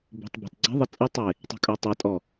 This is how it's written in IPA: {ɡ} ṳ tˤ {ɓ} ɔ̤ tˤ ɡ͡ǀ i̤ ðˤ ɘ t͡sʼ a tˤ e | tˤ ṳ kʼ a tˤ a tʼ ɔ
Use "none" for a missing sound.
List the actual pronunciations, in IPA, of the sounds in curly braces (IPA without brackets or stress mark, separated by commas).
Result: b, b